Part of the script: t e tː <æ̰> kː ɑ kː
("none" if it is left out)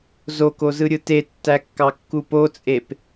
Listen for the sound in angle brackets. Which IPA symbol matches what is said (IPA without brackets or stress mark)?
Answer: æ